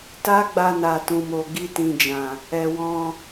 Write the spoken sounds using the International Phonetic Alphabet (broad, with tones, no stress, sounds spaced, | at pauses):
t a˦ ɡ͡b a˧ n a˨ t ũ˨ m o˨ ɡ i˧ t ĩ˨ d͡ʒ ã˨ | ɛ˨ w ɔ̃˧